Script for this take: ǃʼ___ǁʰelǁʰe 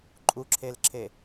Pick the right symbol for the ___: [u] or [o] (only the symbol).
u